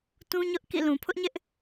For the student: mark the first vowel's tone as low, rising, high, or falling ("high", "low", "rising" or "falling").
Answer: high